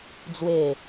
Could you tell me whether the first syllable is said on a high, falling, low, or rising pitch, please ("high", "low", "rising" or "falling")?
falling